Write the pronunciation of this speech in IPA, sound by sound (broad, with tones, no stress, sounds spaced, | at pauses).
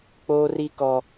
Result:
k͡p oː˦ r i˦ k ɔ˦